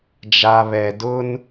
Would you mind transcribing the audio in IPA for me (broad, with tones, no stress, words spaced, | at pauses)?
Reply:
d͡ʒa˨βɛ˨ dʊ˦n